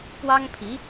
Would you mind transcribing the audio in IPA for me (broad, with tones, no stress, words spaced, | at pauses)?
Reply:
pwɑ˥ŋpʰi˧˥